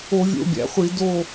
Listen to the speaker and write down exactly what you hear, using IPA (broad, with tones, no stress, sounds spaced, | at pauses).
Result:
o˧˩˧ vʲ o̰˧˩˧ bʲ æ̰˩ χʷ i˧˩˧ d o˥˨